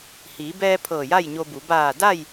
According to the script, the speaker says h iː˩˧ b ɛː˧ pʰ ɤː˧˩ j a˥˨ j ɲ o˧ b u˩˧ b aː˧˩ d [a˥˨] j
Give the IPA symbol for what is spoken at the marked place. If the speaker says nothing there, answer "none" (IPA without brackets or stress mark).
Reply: a˥˨